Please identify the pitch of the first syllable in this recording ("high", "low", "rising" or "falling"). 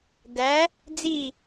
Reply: rising